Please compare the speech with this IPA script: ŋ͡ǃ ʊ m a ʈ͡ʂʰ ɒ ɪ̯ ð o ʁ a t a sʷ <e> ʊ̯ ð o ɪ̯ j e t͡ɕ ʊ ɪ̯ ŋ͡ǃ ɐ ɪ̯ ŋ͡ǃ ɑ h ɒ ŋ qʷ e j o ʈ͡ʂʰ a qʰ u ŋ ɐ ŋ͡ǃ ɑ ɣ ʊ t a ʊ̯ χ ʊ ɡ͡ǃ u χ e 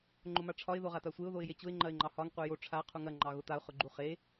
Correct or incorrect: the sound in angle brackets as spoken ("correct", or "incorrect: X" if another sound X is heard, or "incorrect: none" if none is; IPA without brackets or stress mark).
correct